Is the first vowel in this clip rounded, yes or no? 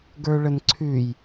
no